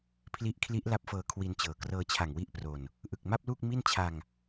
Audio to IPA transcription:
pʰ l i˦˥ ʔ kʰ l i˦˥ ʔ l a˦˥ p̚ f ɤː˧ kʰ w i˧ n t͡ɕ ɤː˨˩ k r ɤː˧ t͡ɕʰ a˨˩ ŋ w i˥˩ ʔ p r o˧ n | ʔ ɯ˨˩ k̚ m a˥˩ p̚ l uː˥˩ k̚ m i˥˩ n t͡ɕʰ a˧ ŋ

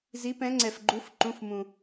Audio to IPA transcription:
z i˩˧ p ɛ̃˩˧ ŋ͡ǀ ɛ˩ f ɡ͡ǃ u˩˧ f ǃ ũ˩˧˩ f m ũ˩

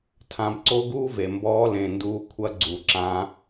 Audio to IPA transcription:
tʰ ã˧ b ǀ o˦ ɡ uː˦ v e˨ m b ɔː˧ l ẽ˨ n d uː˧ kʷʰ ɐ˧ ɡ͡ǀ u˨ ǁ ã˧

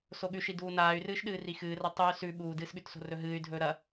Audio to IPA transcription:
s o ɠ ʉ ʃ i d uː n aː y̯ r ɨː ʃ ɗ ɨː r i x ɨː r a tˤ u y̯ s ʉ ɓ uː d ɨː s ɠ ʉ t s o̤ r ɵ ɦ ɨː y̯ dʱ ɵː ɾ ɐ

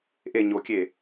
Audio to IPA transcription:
ʔ e ɲ o kʲ e

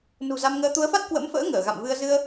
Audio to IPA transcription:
n ṳ˨˩ z a˧ m ŋ əː˧ t̪ u˨˦ ə̯ f a˦˥ t̚ k w ə̰˧˥ m f ə̰ː˧˥ ŋ əː˧˩ ɣ a̰˧˨ m v ɨ˧ ə̯ z ɨ˧ ə̯

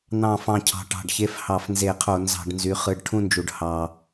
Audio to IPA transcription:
n̪ ɑ̃˦˨ f ɑ̃˦˨ cʰ ɑ̤˨˦ ʈ ɑ̤˩˧˩ ɖ ç e˦˥ f h ɑ˧˩˧ f n z e˧˩˧ qʰ o˧˩˧ n z ɑ̤˧˩˧ ɖ n z y˩˧˩ χ ɯ˩˧˩ ɖ ʈʰ ũ˦˨ n d͡ʒ u˩ ɖ h ɑ˩

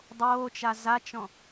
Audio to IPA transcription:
dˤ oː t͡ʃ a z a t͡ʃ ɔ̃

